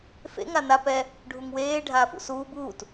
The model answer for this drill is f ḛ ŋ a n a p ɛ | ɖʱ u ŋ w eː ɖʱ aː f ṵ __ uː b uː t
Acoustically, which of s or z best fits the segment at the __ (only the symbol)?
s